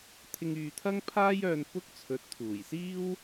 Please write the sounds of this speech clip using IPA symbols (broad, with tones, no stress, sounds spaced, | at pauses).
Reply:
t̪ʰ ɪ˧ ŋ yː˨ t̪ʰ ɐ˥ ŋ pʰ aː˥ j œː˧ n p ʊ˥ k̚ t͡sʰ ɵ˨˥ t̚ t̪ʰ uː˨˩ j s iː˥ w